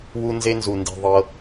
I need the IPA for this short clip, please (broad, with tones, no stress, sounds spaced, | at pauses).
w u˦ n z e˦ n z u˨ n d i̤˨ ðˤ ɤ˧